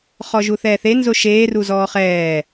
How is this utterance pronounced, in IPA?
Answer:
χ ɔ ʒ u θ ɛː θ e n z o ʃ eː r u z ɔː χ ɛː

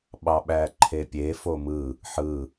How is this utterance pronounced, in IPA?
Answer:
ɓ ɑ ɓ æ ǃʰ e pʲ e f o m ɯ | ħ ɯ

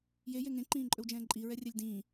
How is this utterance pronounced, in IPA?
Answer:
j e j e ŋ ẽ ǃ ĩː ǃʼ ɵ w d͡ʒ ɛ̃ː ǃʼ i ɹ ɛ rʲ ɛ lʲ d ĩː

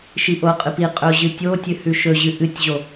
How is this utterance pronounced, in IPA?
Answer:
ʃ i ʔ o qʼ ɨ p i qʼ ɵ ʊ̯ ʑ ɨ tʲ o tʲ ɨ h ʉ ʃ ɵ ʑ ɨ ʔ ɨ tʲ ʑ o

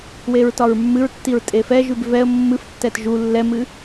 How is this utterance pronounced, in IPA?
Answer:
w e ɹ t ɒ ɹ mː ɨ ɹ tː i ɹ tʼ e f ɛ ʒ ʉ b v ɛ ə̯ mː ɨ f tː ɛ t ʒ u lː ɛ m ɨ

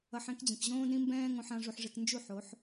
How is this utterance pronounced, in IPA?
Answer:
ʌ˧ ħ ɛ̃˦ k d͡ʑ ĩ˨ k ʑ õː˦ d ɾ ĩ˦ m b ɛ̃ː˦ ŋ õ˧ ħ ã˧ ʐ u˧ ħ ʐ e˧ k n d͡ʒ u˦˨ ħ o˨˦ ħ

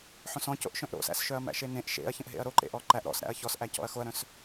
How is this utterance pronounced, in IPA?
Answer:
ħ õ s ɔ̃ c o̰ ʔ ʃ œ̃ ʔ ɾ o̰ s æ̰ s ʃ œ ɐ̯ m æ̰ ʃ e n ẽ ʔ ʃ ḛ ɐ̯ ç ə̃ ʔ ɦ ḛ ɐ̯ ɾ o ǃ ḛ ʔ ɔ ǃ æ ʔ ɾ ɔ̰ s ɾ æ̰ ɐ̯ ç ɔ s ʔ æ c ɔ̰ ɐ̯ x o ɐ̯ ɾ œ̃ s

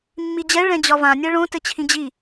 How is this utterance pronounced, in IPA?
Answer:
mː i d͡ʑ ɛ ɭ ɛ̃ d͡ʑ ɒ v ã nʲ ɛ ɭ õ t ɘ t͡ɕʰ ĩ d͡ʑ i

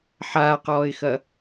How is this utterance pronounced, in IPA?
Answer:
ħ aː q ɔː ɪ̯ x ɐ

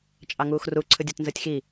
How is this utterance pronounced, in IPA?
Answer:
t͡ʃʼ ɑ ŋ uː x r u ǀʰ ɯ dʲ o t n z ɯ tʲ x i

